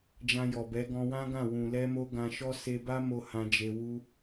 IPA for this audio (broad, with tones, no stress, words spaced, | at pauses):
d͡ʒã˧jɔ˨bɛ˨˦ ɡɔ̃˧wã˦ɡã˦˨ wũ˨lɛ˧mo˧ ɡã˧ʃɔ˦ se˧ba˦mo˧ hã˧d͡ʒe˧ wu˦